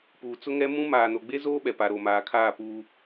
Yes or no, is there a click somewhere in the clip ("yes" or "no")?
no